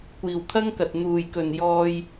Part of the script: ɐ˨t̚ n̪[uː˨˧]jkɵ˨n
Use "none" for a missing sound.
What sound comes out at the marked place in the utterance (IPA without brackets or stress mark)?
uː˨